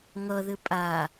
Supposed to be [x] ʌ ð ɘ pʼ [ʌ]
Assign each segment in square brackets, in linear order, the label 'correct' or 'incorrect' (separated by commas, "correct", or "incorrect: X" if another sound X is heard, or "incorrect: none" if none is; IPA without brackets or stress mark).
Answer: incorrect: ŋ, incorrect: a